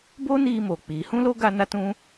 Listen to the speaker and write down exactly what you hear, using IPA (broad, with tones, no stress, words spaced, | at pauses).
bo˦niː˧ moː˨k͡piː˨˦ hũ˦lo˦ ɡa˦na˦tũ˦